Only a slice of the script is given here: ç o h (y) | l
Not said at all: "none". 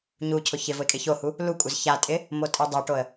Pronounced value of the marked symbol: u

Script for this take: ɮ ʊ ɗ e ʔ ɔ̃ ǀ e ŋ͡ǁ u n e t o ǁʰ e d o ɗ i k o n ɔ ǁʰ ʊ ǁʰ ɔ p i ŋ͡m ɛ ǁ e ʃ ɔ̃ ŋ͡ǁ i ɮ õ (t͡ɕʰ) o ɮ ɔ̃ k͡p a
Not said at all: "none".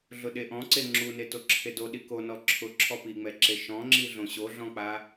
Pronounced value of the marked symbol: ɕ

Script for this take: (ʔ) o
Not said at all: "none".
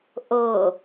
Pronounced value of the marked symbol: ʔ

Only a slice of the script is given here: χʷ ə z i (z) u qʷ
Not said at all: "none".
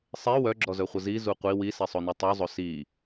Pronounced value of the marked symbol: z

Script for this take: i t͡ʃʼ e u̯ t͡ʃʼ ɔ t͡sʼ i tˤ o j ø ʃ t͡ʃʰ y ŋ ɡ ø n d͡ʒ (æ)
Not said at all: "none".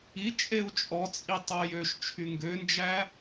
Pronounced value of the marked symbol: æ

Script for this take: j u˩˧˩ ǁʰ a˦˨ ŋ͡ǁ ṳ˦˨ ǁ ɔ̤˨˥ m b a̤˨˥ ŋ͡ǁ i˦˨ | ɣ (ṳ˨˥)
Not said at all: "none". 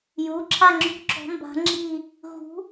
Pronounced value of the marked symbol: ṳ˨˥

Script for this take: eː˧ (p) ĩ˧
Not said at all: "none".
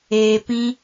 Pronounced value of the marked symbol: p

